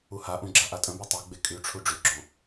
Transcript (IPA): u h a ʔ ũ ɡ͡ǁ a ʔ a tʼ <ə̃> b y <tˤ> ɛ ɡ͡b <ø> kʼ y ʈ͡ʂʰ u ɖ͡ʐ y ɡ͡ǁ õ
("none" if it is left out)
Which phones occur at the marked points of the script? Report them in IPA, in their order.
ə̃, tˤ, e

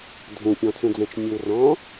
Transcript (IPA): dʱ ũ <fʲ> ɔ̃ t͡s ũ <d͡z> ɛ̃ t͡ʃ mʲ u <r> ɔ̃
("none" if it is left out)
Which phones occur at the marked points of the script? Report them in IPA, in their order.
pʲ, d͡z, r

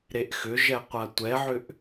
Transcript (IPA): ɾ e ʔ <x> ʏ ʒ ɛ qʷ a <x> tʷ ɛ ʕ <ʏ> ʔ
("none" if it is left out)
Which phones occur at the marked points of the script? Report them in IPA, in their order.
x, none, ʏ

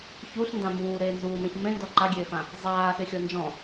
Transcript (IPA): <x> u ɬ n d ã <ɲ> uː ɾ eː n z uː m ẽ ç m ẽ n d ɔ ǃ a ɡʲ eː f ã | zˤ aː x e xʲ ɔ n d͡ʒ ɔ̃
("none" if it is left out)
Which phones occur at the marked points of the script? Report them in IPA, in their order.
ç, m

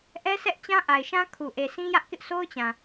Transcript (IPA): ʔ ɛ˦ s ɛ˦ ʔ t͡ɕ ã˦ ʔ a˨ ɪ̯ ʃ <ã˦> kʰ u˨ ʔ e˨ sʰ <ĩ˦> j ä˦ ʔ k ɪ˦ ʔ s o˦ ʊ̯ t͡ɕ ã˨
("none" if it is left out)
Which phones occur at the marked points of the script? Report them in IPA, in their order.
ã˦, ĩ˦

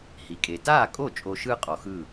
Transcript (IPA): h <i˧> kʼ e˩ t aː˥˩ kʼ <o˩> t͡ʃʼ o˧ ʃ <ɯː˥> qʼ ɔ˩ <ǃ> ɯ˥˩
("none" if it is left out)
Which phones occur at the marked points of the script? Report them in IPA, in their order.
i˩, o˥˩, ɯː˥, x

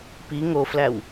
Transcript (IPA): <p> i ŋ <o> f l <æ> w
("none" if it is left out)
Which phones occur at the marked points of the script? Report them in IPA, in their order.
p, o, æ

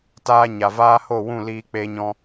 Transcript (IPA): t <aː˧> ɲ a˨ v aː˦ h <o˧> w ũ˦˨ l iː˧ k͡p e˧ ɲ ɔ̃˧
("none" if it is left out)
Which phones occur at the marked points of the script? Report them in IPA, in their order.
aː˧, o˦˨

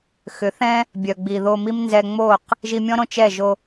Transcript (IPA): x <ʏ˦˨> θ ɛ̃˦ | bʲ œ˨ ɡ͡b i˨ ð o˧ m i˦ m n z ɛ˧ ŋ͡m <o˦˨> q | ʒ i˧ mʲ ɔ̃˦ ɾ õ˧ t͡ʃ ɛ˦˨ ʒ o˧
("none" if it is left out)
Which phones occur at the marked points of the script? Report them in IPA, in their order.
ʏ˨˦, o˦˨

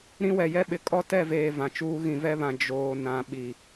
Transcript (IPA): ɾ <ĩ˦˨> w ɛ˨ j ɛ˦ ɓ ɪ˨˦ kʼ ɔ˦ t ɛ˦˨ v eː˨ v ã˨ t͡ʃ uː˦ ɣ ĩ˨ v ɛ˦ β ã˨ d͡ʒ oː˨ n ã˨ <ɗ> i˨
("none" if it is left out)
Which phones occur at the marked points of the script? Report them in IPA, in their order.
ĩ˦, ɓ

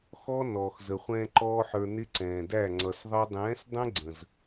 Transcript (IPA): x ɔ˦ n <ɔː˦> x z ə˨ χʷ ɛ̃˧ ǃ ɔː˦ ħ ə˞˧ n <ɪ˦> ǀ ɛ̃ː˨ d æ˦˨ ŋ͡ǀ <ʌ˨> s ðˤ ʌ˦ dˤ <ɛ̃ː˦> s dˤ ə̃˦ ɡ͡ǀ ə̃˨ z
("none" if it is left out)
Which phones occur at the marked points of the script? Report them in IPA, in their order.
ɔː˨, ɪ˦, ʌ˨, ɛ̃ː˨˦

